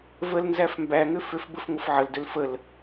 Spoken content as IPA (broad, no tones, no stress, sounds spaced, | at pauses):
v ə l n z æ f m b æ ŋ ʏ f ʏ f b ə f ŋʷ ə f ʕ ə l d ʏ l f ə l